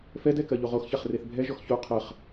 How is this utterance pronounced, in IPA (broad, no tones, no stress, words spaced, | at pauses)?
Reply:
fɛdɛ kɜʎoʁoxçaχ reθbʱɛʒɔx ço qʰɜχ